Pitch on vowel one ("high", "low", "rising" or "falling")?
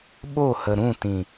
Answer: falling